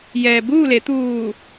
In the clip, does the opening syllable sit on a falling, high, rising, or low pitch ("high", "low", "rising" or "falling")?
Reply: low